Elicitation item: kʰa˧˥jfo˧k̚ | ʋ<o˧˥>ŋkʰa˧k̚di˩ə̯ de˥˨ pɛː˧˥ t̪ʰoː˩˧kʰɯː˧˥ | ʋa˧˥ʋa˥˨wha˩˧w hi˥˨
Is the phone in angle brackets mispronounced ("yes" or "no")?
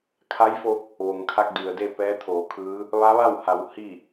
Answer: yes